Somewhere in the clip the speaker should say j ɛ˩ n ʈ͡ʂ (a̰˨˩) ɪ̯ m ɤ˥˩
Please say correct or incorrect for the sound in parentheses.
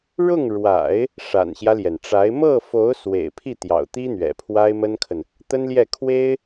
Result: incorrect